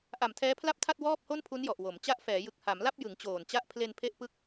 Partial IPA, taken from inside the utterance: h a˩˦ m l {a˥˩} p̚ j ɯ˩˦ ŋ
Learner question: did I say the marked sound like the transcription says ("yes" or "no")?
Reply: yes